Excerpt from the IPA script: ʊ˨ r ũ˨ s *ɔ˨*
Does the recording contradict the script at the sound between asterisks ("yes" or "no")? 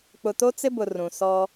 yes